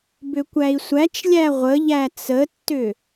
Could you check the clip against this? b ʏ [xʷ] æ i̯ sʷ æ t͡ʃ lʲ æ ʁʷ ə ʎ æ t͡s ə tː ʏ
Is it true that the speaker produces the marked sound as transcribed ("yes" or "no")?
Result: no